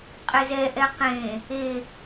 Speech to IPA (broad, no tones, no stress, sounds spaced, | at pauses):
qʼ e z ɛ ʔ ɛ q ẽ | e